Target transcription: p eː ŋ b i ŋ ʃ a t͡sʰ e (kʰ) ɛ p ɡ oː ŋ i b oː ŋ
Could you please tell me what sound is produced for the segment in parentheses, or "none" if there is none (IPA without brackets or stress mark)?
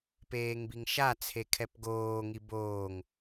kʰ